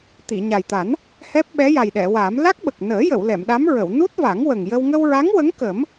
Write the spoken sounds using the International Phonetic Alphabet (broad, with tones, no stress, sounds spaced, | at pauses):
t̪ i˨˩˨ ɲ a˨˩ j t̪ a˨˩˦ n | h ɛ˦˥ p̚ ɓ ɛ˧˥ j a˨˩ j ɗ ɛ˨˩˨ w a˨˩˦ m l a˦˥ k̚ ɓ ə˨˩ k̚ n əː˨˩˦ j ə˨˩˨ w l ɛ˨˩˨ m ɗ a˧˥ m ɹ ə˨˩˨ w n u˦˥ t̚ v a˨˩˦ ŋ w ə˨˩ ŋ j ə˧ w ŋ ə˧ w ɹ a˧˥ ŋ w ə˧˥ ŋ k ə˨˩˦ m